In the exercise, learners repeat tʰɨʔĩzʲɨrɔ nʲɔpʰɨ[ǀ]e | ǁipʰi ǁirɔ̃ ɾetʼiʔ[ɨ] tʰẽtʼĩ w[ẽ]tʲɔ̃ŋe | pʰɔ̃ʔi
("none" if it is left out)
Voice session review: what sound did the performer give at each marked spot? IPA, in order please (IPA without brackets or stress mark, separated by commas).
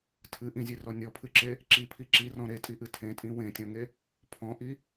ǁ, ɨ, ẽ